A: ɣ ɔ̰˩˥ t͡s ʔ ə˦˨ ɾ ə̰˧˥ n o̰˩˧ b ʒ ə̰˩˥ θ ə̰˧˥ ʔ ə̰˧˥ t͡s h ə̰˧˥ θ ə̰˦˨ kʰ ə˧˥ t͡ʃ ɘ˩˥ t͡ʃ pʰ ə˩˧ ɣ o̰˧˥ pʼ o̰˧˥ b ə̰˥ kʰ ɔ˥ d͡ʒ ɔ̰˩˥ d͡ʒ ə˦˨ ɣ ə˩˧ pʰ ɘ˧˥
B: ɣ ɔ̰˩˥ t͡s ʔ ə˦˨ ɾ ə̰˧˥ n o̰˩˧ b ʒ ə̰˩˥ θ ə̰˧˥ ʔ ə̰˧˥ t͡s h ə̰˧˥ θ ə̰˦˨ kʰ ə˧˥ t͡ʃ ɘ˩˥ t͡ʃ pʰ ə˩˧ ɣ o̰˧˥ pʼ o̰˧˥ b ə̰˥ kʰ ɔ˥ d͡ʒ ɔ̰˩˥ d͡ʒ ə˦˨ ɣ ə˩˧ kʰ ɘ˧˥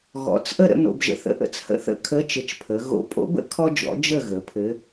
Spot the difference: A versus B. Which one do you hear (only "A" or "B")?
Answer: A